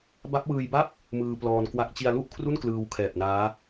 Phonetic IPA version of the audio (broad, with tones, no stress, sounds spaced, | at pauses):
b a˦˥ p̚ w ɯː˧ j b a˥˩ p̚ | m ɯː˧ p l ɔː˧ n k w a˦˥ k̚ t͡ɕ i˧ a̯ l u˥˩ ʔ kʰ r u˥˩ n k l ɯː˧ w kʰ ɛː˨˩ p̚ n aː˦˥